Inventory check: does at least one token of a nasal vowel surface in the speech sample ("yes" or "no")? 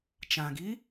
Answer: yes